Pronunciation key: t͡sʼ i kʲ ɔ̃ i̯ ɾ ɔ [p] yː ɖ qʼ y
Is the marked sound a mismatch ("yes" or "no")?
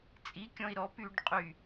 no